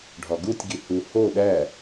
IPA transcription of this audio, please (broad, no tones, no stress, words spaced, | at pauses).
ɖʱɒɡutʲɡi hu ho ɗæ